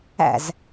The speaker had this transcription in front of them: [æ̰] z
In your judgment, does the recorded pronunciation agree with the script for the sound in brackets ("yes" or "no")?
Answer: yes